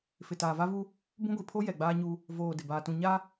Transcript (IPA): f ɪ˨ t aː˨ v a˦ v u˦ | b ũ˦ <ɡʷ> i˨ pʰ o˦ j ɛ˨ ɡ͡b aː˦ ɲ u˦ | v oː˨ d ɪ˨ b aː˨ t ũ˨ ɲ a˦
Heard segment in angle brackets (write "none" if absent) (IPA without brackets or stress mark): ɡʷ